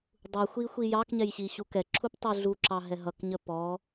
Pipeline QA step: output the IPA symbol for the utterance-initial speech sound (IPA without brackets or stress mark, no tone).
dˤ